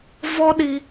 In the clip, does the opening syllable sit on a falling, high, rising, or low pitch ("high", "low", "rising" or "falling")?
high